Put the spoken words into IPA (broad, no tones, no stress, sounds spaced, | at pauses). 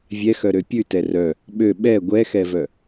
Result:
vʲ ɛ x œ ɾ ø pʲ ʉ t ɛ r œ | ɓ ø ɓ ɛ ɡʷ ɛ x ɛ v œ